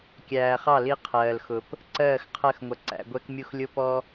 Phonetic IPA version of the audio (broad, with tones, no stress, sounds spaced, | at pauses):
kʲ æː˨ χ ɑ˦˨ l i˦ qʰ ɜː˨ l x ʊ˨ p | ǀ ɜː˦˨ x qʰ ɜ˦˨ x ŋʷ ʌ˨ ǀ æ̰˨ ɡʷ ɛ˦ k mʲ u˦ x lʲ ʊ˦ p ɔ˦